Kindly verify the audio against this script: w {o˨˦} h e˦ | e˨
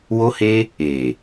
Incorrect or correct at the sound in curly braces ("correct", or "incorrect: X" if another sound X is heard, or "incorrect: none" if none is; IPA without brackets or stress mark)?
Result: incorrect: o˦